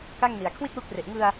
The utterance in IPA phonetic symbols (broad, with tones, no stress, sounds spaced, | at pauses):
k a˥˩ ŋ n i˨˩ a̯ kʰ w i˥˩ t̚ w u˦˥ k̚ r e˨˩ ʔ ŋ ɯ˧ a̯